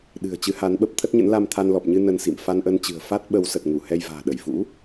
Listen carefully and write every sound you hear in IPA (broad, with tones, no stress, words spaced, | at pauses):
ɗɨ̤˨˩ə̯ t͡ɕɨ˨˦ha˨˦nɓə˦˥p̚ t̪ʰə˦˥t̚ɲə̰˧˥nla˧mt̪ʰa˧n lɔ˨˩p̚ɲɨ˧ nə˧nsḭ˧˨m fa˧nʔə˧nt͡ɕɨ̤˨˩ə̯ fa˦˥t̚ɓə˨˦w sə˨˩t̚ŋu˧˩ hɛ˧jva̤ː˨˩ɗə˧˩j fṵ˧˥